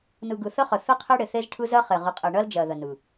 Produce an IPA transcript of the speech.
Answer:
n ɯ˨ ɡ ɯ˨ θ ə˦ χ ə˨ θ ɯ˦ qʰ e˦ ɽ ɪ˨ θ e˦ z ʈʰ ɯ˦ z ɜ˦ χ e˨ ʁ ɯ˨ qʼ e˨ ɳ ɜ˦ l d͡ʒ ɜ˨ ð ə˨ n ɯ˨

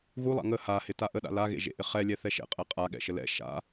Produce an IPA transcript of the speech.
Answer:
ɣ u lˠ a̰ ŋ ə h a h ɪ t a ʔ ə ɗ a̰ l a ɣ ḛ ʒ ḛ ʔ ɪ χ ɛ lʲ ɛ θ ɛ ʃ ɛ̰ qʼ ɛ qʼ a ɠ ɛ̰ ʃ ə l ɛ̰ ʃ a̰

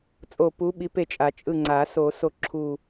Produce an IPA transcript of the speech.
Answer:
t͡sʼ o˦˨ p u˧˥ ɓ i˧˥ p e˦˨ t͡ʃʼ a˨˩˦ t͡ʃʼ ɯ˦˨ ŋ͡ǀ a˨˩˦ s o˨˩˦ s o˦˨ ǁʰ u˦˨

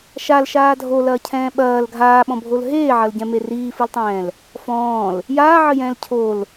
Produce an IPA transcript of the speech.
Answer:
ʃ a l ʃ aː dʱ o l ɐː cʰ ɛ̃ː ɓ ɐː l ɡʱ aː ɓ ɔ̃ bʱ o l ɦ eː ʕ ɐ l ɟ ɛ̃ m e r iː f ɨ l tˤ ɛ̃ː l | f ɔ̃ː l | j aː ʕ ɘ j ɛ̃ː l cʰ o l

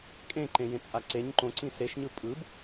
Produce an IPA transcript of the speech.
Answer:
kʼ ẽ ǃ ẽ j ẽ t͡sʼ a ǀ e ɲ ǃ õ ǀ ĩ s e ʃ ɲ ɯ pʼ ɯ b

